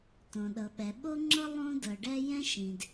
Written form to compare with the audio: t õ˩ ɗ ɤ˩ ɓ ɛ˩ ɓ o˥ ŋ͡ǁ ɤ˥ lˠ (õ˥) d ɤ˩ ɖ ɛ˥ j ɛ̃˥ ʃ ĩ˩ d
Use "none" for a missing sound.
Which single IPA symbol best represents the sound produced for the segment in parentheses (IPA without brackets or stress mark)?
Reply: õ˥